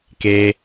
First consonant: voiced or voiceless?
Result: voiceless